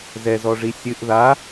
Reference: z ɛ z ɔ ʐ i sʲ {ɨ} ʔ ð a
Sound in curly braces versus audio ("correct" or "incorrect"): correct